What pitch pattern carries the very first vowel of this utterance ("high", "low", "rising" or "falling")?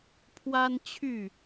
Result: high